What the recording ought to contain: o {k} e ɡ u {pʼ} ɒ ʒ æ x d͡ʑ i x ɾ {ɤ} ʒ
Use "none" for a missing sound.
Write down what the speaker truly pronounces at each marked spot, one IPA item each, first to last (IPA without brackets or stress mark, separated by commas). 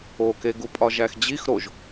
k, pʼ, o